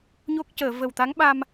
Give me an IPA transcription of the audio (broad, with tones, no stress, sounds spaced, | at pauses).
ɲ o˦˥ k̚ c əː˨˩˨ v ə˨˩ w t̪ a˧˥ ŋ ɓ a˧ m